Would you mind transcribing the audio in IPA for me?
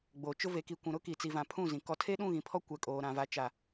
ɡ͡bo˨t͡ʃʊ˦ ve˨ki˨ kʷũ˨ɾʊ˦ki˨ t͡si˨vã˨ pʰũ˦˨zĩ˨ kɔ˨tʰe˦ɗũ˦˨ ɣĩ˨pʰɔ˦ kʷɛ˨kʼoː˨ ɾã˨va˨ t͡ʃa˨

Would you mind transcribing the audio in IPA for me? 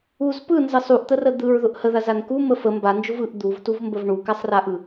uz pɯnzə sˤuʔt̪ərə d̪ɯɹðʊʔ həðazan kumə fə mband͡ʒʊv ɯʔ d̪uvtuvmbəv ɳukasˤraʔɯ

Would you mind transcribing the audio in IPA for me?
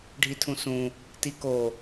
ɖʱitʰũsũ | tiko

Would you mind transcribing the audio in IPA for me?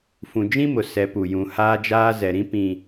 fũ˨d͡ʒĩ˦mʊ˨ sɛ˨˦pu˨ jũ˨ haː˦d͡ʒaː˦zɛ˨ɾĩ˦ pĩ˨

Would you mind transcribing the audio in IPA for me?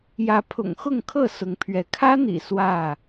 jä˨˦pʰʊ̰˨˩ŋxʊ˥˨ŋkʰɤ˥˨ sʊ˨˦ŋpʰɥɛ˨˦ kʰä˦n̪ḭ˨˩ swä˥˨

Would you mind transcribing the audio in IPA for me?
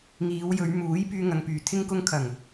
ŋiː˨˧wjɵ˨˧ɥ muː˨˥j pyː˧ŋɐ˨ŋpyː˨˩ t̪ʰɪ˧ŋ kʊ˧ŋkʰɐ˨˩ŋ

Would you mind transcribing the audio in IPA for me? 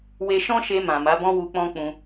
we˧ʃɔ̃˦ʃe˧ mã˨ma˨˦bɔ̃˦ wu˧k͡pɔ̃˦k͡pũ˧

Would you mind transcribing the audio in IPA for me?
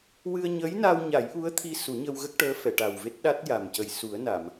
wɨ˧ə̯ɲəː˧˥jna˧wɲa˨˩˦j ʔu˧˥ə̯t̪ʰi˧ su˨˩˦ɲə˧wɣə˦˥k̚ʈəː˧˥ fɛ˨˩˨ʈa˨˩wve˦˥t̚ɗa˦˥t̚ ja˨˩mcə˨˩j su˨˩˦ə̯na˨˩˨m

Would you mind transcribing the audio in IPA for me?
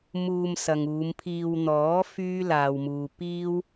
muː˧m sɐ˨ŋuː˨˧mpʰiː˧w n̪ɔː˨˥ fyː˥laː˨wmuː˨ piː˥w

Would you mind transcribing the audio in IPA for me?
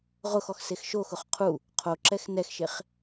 ʁʊxɔx sexʃoxʊχ qʰu | qʰoǁɛx nɛxʃeχ

